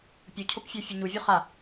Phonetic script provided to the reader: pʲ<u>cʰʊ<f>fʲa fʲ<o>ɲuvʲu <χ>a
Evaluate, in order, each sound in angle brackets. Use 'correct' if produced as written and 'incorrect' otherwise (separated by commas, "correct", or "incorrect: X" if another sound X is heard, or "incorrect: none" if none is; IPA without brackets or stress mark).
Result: correct, incorrect: p, incorrect: u, correct